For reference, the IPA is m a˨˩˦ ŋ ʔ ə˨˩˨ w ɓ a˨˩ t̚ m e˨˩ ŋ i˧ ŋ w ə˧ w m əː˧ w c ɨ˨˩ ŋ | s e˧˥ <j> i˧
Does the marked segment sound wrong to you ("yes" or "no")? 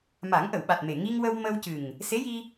no